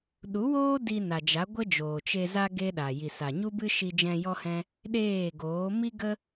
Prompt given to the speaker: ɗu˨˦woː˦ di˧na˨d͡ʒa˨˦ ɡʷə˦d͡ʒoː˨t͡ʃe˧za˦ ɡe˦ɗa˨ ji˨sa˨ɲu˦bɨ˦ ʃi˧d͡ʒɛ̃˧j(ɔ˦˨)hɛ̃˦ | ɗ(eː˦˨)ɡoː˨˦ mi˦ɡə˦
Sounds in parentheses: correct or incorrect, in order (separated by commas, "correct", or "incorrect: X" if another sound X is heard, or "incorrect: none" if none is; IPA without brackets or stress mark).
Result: incorrect: ɔ˦, correct